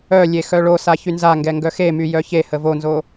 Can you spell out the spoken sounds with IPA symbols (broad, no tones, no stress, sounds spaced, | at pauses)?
œ lʲ e x œ ɭ o s a ç y n z a ŋ ɡ ɛ ŋ ɡ œ x e m y j œ ç e h ə v o n z o